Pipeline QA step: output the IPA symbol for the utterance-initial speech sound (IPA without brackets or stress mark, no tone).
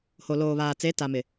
h